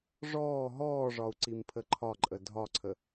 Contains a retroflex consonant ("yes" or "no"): yes